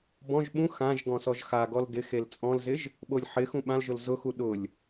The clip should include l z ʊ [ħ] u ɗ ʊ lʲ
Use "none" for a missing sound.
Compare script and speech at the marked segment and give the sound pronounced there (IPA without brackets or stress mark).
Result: x